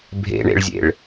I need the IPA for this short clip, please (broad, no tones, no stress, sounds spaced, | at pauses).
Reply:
bʱ ḛ ɳ ḛ ɭ zʲ ḛ ɭ